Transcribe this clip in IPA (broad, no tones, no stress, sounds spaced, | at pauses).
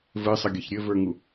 v ɘ sˤ ʌ ɡʲ ʌ ç ɾʲ ɘ v ə˞ ŋ u